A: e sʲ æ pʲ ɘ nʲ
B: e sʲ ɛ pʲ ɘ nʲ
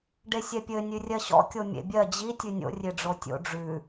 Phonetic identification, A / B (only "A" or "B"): B